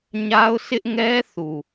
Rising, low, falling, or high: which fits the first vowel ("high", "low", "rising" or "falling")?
high